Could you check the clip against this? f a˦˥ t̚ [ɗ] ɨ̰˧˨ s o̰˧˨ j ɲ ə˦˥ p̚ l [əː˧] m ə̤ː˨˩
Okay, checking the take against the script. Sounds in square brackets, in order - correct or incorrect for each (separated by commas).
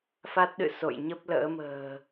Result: correct, incorrect